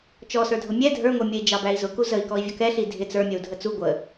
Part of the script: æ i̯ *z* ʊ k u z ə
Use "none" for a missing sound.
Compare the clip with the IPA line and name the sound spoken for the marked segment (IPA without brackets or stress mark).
z